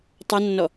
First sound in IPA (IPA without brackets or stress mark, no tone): tˤ